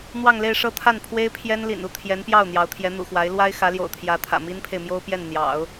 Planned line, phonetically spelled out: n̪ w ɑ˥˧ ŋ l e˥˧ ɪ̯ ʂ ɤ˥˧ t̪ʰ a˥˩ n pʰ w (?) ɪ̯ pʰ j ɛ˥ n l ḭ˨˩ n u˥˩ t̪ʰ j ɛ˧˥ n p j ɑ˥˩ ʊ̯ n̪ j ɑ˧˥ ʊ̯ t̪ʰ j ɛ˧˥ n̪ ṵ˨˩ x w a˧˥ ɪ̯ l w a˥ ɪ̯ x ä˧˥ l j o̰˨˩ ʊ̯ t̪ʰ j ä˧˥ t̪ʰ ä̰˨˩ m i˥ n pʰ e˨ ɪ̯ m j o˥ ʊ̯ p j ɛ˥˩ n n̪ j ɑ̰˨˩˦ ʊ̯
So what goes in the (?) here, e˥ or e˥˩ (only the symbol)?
e˥